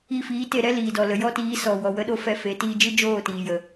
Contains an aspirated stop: no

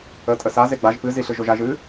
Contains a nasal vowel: no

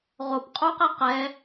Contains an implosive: no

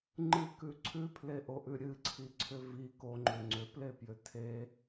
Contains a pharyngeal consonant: no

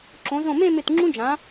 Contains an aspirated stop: no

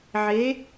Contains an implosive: no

